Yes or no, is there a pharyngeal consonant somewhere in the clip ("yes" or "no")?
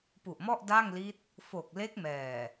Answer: no